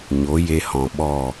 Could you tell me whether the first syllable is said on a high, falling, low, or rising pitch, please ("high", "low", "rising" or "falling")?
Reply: rising